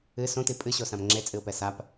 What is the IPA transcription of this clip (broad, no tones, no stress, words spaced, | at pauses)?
ɨ sõti pʼɨɕosãm ŋ͡ǁet͡sʼɨʊ̯pɛ sap